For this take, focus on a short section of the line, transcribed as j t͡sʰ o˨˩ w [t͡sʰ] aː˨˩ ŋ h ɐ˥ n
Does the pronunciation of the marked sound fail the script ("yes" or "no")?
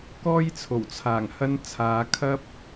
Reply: no